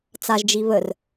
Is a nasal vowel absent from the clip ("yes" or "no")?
yes